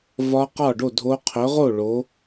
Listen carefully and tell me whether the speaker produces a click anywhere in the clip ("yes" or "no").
no